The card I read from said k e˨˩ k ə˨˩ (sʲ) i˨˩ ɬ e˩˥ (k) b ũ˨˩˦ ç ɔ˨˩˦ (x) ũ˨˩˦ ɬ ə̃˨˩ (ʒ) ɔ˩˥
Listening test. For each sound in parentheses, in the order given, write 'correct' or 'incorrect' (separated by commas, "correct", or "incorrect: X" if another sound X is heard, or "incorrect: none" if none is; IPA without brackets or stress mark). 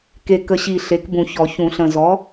incorrect: ɕ, correct, incorrect: ç, incorrect: z